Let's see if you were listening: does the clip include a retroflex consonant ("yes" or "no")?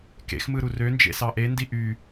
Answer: no